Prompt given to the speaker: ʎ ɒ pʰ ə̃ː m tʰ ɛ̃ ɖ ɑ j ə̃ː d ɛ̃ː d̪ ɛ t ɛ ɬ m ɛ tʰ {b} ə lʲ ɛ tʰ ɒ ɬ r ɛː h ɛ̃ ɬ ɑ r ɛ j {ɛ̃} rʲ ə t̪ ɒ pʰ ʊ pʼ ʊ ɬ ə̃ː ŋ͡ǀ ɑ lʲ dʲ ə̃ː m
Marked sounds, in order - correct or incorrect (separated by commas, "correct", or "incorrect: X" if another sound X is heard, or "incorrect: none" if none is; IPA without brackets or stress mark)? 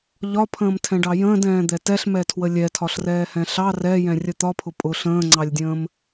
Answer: incorrect: w, correct